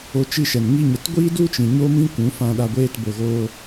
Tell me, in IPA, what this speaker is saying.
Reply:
o˧ t͡ʃ i˦˨ ʃ ɛ˨ n ŋ i˧ ɲ ə˨ t ɡʷ iː˦ d u˦ t͡ʃ ĩ˨ ɲ o˦ m ĩ˦ kʷ ũ˨˦ f ã˧ ɗ a˧ ɡʷ eː˧ t b o˨ ɣ oː˧

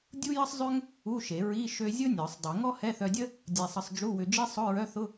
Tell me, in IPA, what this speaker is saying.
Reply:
dʲ u˥ j ə˥ sˤ zˤ ø˥ ŋ | u˧˥˧ ʃ e˨˩˦ ɹ i˧˥˧ ʃ ø˧ zʲ ʊ˥ nʲ ɔ˨˩˦ sˤ dˤ i˨˩˦ ŋ ɔ˥ h ɛ˧˥˧ θ œ˧ dʲ ə˥ | dʲ ɛ˧ sˤ ə˧ sˤ d͡ʒ u˧˥˧ w ʏ˧ d͡ʒ i˥ sˤ ʊ˧˥˧ ɹ œ˧˥˧ θ ʊ˧˥˧

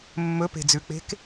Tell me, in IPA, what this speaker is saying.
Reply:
mː ɵ p e̤ d͡z ʉ k͡p e̤ k

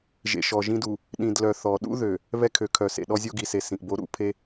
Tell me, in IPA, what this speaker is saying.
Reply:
ʒ ḛ˨ ʃ ɔ˨ ʒ ĩ˦ d u˨ | ɗ ĩ˨ d l œ˨ θ ɔ˨ ɗ ṵ˦ ð ø˨ | β ɛ˦ kʰ ø˨ kʰ œ˨ s ḛ˨ ɗ ɔ˦ zʲ o˦ ɡ i˨ s e˨ s ĩ˨ ʔ b o˦ ɾ ṵ˦˨ pʰ e˦

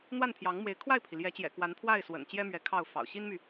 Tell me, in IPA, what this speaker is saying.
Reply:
n̪ w a˥˩ n pʰ j ɑ˧˥ ŋ m w e˧˥ ɪ̯ kʰ w a˥˩ ɪ̯ pʰ i˩ l j ɛ˧˥ t͡ɕ j ɛ̰˨˩ k w a˧˥ n pʰ w a˥˩ ɪ̯ s w ə̰˨˩ n t͡ɕ j ɛ˥ m ɥ ɛ˧˥ kʰ ɑ˥˩ ʊ̯ f ɑ̰˨˩ ʊ̯ ɕ i˥ n m y˨

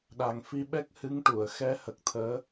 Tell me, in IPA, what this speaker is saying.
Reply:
ɗ a˨˩ ŋ f i˧ ɓ ɛ˦˥ k̚ h ɨ˧˥ ŋ ʈ u˨˩˨ ə̯ x ɛ˧˥ h ə˨˩ k̚ t̪ʰ əː˧˥

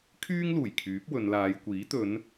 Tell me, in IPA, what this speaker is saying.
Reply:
kʰ yː˥ ŋ l uː˨˩ j kʰ yː˨˥ p̚ w ɵ˨˧ n l aː˨˧ j kʷ iː˨˥ t̪ ɵ˨˧ n

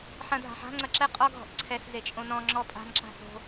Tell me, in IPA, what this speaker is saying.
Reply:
ħ ɐ̃ dʱ a̤ ħ a̤ ŋ͡ǀ ɐ ǁ ɛ qʼ ɔ ɡʱ ɔ̤ ʔ ǀʰ ɛ s z e t͡ʃʼ õ n ɔ̃ ŋ͡ǁ ɔ pʼ a̤ n ǁ a̤ s o̤

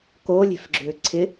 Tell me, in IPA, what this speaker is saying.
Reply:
k o lʲ e̤ f ɡ͡ǁ ʏː ǀʰ ɪ

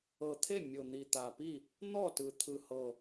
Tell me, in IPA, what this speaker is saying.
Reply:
ɤ˨˩ t̪ʰ e˥˩ mʲ o˨˩ n̪ i˨˩ t̪ a˨˩ p i˥˩ | n̪ ɔ˥˩ t ɯ˨˩ t̪ʰ ɯ˨˩ h ɤ˨˩

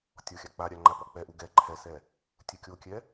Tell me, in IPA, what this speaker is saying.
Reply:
tʲ ɔ xʲ a k͡p a ɾʲ a ŋ͡ǃ a p ɔ k͡p ɛ ʔ u ɡ ɛ ǃʰ ɛ s ɛ | tʲ u kʲ o kʲ ɛ

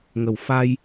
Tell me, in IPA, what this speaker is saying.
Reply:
ŋ ə˨˩ w f a˧ j

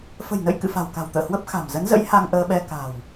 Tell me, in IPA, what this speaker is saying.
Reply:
f ə̤˨˩ j n ə̰˧˨ j k ɨ̰˧˨ f a̤˨˩ w k a̤˨˩ w t̪ ə̰ː˧˨ h w ə˦˥ p̚ x a̤˨˩ m z ə˨˦ n z ə̰˧˥ j h a˧ ŋ ʔ əː˧ ɓ ɛ˧ k a̤˨˩ w

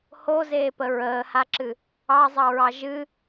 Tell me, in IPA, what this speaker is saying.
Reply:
h o z eː p ə ɹ əː h a ǁ ɨ | ɑ zˤ ɑ ɹ ɑ ʒ ɨ

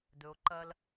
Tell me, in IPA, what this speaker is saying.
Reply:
d ɵ˧ o̯ ǃ ɐ˦ l

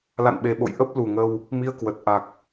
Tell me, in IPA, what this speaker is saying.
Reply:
l a̰˧˨ n ɓ e˨˩ ɓ o̰˧˨ j ʔ ə˦˥ p̚ l u˨˩ ŋ ə˧ w | m i˧ ə̯ k w ə˨˩ t̚ ʔ a˨˩ k̚

